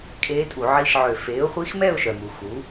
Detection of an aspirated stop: absent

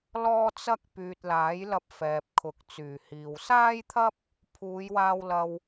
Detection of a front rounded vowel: present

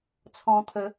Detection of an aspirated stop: present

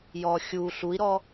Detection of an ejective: absent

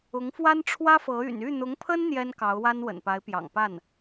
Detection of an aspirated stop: present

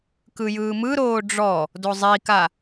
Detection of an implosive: absent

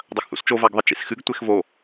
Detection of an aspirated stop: absent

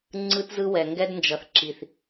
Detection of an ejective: absent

